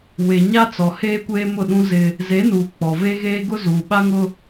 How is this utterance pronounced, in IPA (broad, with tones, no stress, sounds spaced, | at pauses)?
w e˨ ɲ a˦ t͡s ɔ˨ h eː˦ kʷ eː˦ m ʊ˦˨ ɗ ũ˦ z ɪ˦ | z e˨˦ n uː˨ k͡p ɔ˨ v e˦ ɣ eː˦ ɡ ʊ˦ z uː˨ ɓ a˦ ŋ ʊ˦